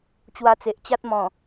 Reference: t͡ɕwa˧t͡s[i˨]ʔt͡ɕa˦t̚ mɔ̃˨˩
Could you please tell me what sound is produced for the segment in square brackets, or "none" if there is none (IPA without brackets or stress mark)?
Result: e˨